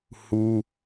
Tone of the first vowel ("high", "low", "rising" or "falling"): high